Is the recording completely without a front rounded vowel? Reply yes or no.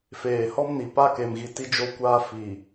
yes